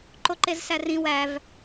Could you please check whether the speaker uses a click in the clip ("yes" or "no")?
yes